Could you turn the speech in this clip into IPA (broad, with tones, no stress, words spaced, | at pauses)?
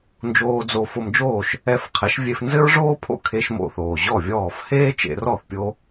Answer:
nd͡ʒoː˧d͡zo˧ fo˧md͡ʒoː˥˩ʃ | ɛ˧fqʰɛ˩˥ʃvʲe˧f nzɘ˥ɹʐoː˥pʰo̰˥˩kʰe˧ʃ mo̰˧θoː˩ʑɔ˥˩vʲɔː˥˩f heː˥t͡ʃḛ˧rɔ˥˩θ pʲo˥